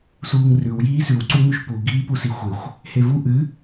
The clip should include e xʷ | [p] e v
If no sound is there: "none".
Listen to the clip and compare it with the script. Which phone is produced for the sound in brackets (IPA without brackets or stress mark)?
h